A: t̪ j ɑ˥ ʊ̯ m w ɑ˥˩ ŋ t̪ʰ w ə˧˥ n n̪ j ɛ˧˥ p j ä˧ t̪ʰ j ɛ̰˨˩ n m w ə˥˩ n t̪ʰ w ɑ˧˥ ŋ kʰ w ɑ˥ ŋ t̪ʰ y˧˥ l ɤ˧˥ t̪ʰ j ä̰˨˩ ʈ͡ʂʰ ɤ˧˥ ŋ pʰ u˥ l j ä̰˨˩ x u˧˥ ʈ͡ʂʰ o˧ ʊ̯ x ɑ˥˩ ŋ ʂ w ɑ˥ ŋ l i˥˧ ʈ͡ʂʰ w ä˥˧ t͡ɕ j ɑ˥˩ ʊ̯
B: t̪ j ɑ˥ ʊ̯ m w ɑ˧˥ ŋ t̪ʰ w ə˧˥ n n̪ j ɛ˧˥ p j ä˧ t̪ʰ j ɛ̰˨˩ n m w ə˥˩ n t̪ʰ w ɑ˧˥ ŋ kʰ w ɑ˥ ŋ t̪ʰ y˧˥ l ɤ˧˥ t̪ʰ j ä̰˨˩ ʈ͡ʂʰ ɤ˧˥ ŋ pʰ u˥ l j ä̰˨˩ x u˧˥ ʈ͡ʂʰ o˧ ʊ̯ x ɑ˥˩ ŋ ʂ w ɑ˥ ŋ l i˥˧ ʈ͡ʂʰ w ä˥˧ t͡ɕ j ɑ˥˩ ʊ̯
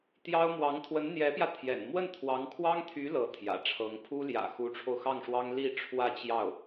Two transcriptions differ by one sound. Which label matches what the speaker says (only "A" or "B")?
B